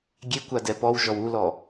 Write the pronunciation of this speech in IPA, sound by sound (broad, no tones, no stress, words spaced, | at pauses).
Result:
ɡʲekʷa dɛpɔwʒɔw ulɔ